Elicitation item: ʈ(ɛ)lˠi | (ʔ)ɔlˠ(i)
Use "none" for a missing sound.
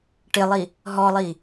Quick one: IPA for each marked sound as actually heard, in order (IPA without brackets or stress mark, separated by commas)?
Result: ɪ, ɦ, i